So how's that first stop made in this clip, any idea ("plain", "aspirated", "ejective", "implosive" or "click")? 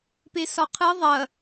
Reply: plain